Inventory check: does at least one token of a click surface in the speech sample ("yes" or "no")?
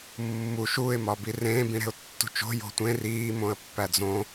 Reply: no